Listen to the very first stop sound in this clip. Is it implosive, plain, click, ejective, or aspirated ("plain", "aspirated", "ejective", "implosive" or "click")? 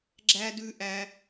click